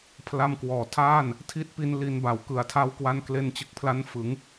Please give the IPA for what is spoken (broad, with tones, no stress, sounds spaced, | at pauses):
pʰ l a˧ m k w ɔː˩˦ tʰ aː˥˩ n | tʰ i˦˥ t̚ p i˧ n l i˧ n b a˩˦ w k ɯ˨˩ a̯ tʰ a˦˥ w k w a˧ n k l e˧ n t͡ɕ ɯ˨˩ k̚ pʰ l a˦˥ n f ɯ˩˦ ŋ